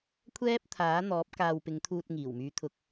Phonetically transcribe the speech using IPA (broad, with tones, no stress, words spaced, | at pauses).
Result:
kʷʰɛː˥p̚t̪ʰaː˨˥n̪ɔː˨˥p̚ kaː˨wpɪ˨˧ŋt̪ʰuː˧t̚ ŋiː˨˩wmyː˨˧t̪ʰʊ˨k̚